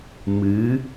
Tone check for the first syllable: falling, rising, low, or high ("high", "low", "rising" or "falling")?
rising